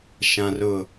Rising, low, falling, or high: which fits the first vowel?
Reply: low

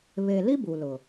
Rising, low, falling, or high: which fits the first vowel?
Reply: low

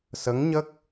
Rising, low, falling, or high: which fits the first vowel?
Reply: rising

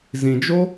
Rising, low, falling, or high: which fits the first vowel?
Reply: low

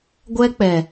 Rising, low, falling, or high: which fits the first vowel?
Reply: high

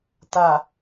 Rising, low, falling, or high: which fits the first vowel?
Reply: low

